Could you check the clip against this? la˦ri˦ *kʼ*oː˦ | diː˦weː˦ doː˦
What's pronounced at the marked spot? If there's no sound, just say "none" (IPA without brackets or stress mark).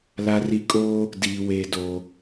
kʼ